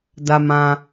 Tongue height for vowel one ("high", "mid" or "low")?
low